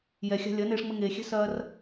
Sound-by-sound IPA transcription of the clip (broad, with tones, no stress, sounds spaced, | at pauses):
j ɛ˨ xʲ a̤˧ lʲ ɐ˨˦ n eː˧ ʂ ŋ͡m ɘ˧ ŋ eː˨ xʲ ɛ̤˦ s ɐː˦ r